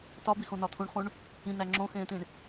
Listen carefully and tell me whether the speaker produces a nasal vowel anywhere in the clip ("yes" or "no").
yes